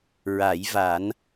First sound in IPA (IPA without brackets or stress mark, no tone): ɹ